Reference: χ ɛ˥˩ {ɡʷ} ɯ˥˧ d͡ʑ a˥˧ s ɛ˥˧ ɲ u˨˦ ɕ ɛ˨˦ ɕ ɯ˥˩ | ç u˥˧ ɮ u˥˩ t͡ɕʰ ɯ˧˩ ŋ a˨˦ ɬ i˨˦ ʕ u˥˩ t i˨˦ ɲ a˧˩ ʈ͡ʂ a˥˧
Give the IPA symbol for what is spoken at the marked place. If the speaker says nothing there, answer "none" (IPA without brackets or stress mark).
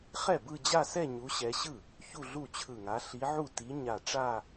b